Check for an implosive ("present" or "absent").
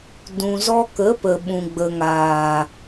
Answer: present